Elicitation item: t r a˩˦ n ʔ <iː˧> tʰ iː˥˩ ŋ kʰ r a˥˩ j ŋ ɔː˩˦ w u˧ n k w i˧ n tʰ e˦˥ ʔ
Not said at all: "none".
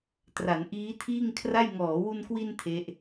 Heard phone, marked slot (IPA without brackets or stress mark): iː˦˥